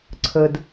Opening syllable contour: low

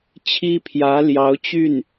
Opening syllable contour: high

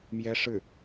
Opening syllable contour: high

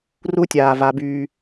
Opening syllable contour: high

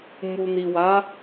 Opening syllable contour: low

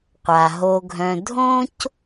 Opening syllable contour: low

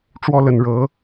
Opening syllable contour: falling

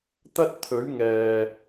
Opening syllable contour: high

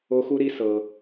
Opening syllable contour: high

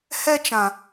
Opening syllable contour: high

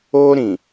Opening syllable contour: high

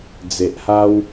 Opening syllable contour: low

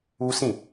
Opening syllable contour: high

